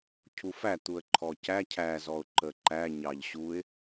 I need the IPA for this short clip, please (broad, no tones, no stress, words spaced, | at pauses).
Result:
cʰufæ t̪uə̯ǃʰɔcæ cʰæ zɔʊ̯ǃəǃæ ɲɑʎɕuɪ̯